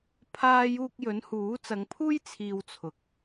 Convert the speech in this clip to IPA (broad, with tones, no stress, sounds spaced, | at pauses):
pʰ aː˧ j uː˧ k̚ j ɵ˨˥ n h uː˨˥ t͡s ɐ˨˧ ŋ pʰ uː˥ j t͡sʰ iː˧ w t͡sʰ ʊ˨ k̚